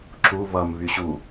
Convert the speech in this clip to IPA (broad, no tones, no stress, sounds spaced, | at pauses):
ǁ u β ʌ m β y ɕ u